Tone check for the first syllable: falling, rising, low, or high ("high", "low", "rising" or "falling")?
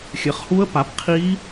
rising